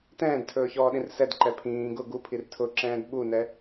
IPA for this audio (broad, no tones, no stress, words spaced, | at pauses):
tɛ̃ːdtʰɵːçɔːɗĩr sɛdǃɛ pʰĩː ɡʊ ɡupʰir tʰʊǁɛ̃ːd ɓunɛ